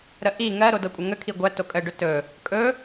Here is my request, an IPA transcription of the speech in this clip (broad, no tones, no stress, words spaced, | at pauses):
ɾəʔi ŋɜ ɾodɤkʷʼəŋə kʰiɡʷæ tokʼəɖɵ tɵ | kʼɵ